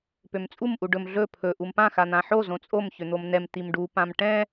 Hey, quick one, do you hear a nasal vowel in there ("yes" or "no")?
yes